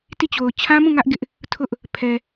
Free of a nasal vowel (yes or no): no